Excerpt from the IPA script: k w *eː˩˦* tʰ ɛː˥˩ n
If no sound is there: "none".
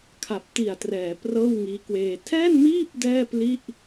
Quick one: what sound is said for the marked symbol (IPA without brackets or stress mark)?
eː˧